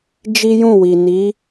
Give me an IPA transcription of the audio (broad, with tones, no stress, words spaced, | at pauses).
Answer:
d͡ʒi˦jũ˦˨wi˨ ni˨˦